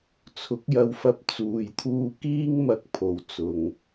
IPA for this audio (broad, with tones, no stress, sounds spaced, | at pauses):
t͡sʰ ʊ˨˥ k̚ j ɐ˧ w f ɐ˧ p̚ t͡s uː˨ j t̪ʰ uː˧ k iː˥ ŋ m ɐ˧ k̚ pʰ o˨ w t͡s ʊ˨ ŋ